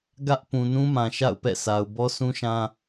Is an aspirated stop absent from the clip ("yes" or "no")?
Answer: yes